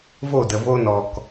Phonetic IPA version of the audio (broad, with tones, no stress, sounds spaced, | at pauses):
v o˦˨ d ə˨ v o˦ n ɔ˨ k